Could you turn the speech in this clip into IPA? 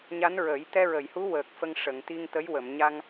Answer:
ɲa˧˥nɹə˨˩˦j t̪ɛ˧ɹə˨˩˨jhu˧˥ wəː˨˩k̚fə˧ŋʂə˨˩˨ŋ t̪i˧ŋt̪ə˧˥jwə˨˩˨m ɲa˧ŋ

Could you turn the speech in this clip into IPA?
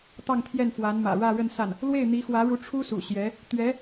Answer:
t̪ɑ˥˧ŋt̪ʰjɛ˥˩nfwa˧˥n mä̰˨˩ɻä˥˧ ɻə˥˧nsa˥˩n | lwe˥˩ɪ̯n̪i˧˥xwä˧˥ɻu˧˥ ʈ͡ʂʰu˥sṵ˨˩ ɕjɛ˧˥ | t̪ɥɛ˧˥

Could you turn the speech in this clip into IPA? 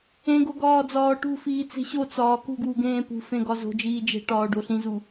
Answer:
ẽɡo ɡɒːd͡zɒːʈṳfiː t͡se̤ɕot͡sɒː kṳɡwu ɡẽːpṳfẽ ɡɒzo̤d͡ʒiː d͡ʒe̤ ʈɒːɖoɬĩzu

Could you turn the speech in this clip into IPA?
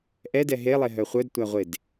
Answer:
ʔɛdɛ ɦelˠe ɦœχʷœdtʷæʁʷed

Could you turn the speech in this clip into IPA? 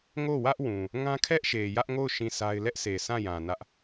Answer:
ŋo˦˨wä˦ʔwũ˨ | ŋã˦kʰɛ˦ʔ ʃe˨ jä˦ʔŋo˦˨ʊ̯ ʃĩ˦˨sa˦ɪ̯ lɛ˦ʔsʰe˨ sã˦˨jã˨ nä˦ʔ

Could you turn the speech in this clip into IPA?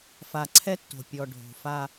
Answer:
fa˨ǀʰɛ˦tːo̤˨ pʲɔ˨ ɖʱo̤˨fa˦

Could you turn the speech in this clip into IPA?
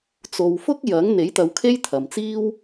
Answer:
t͡so˨wfʊ˥k̚ jɐ˨˥ŋ n̪e˨˥jt̪ɐ˨˧wkʰe˥j t̪ʰɐ˨mt͡siː˥w

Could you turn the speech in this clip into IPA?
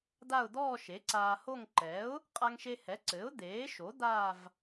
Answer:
d̪a˥˧ʊ̯ d̪ɔː˥˧ʃe˩˥ ǀaː˧ho˥˧ŋ ǃɛ˩˥ʊ̯ | qʼa˧ŋʃe˧hɛ˩˥ǀɘː˩˥ʊ̯ d̪eː˩˥ʃo˩˥ d̪a˥˧v

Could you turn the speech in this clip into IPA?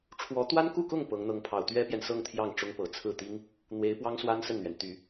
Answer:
ʈ͡ʂʰwɔ˧˥ t̪wa˥nku˥˧kʊ˥˩ŋ pɤ˧˥ŋ n̪ɤ˧˥ŋpʰɑ˨˩ʊ̯ t̪ɥɛ˥pjɛ˨nsɤ˥˧ŋ t̪ʰjɑ˥˩ŋʈ͡ʂʊ˥ŋ pɤ˨˩t͡sʰɹ̩˥˩t̪i˥ŋ | n̪we˧˥ɪ̯pwɑ˥ŋswa˥n sə˥˩nn̪ɥɛ˩n t̪y˨˩˦

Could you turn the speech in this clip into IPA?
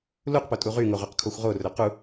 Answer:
luqpo tʼuʁyŋo ʁʉqkʰoxʷʁorɵ qu

